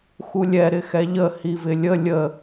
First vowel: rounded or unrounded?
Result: rounded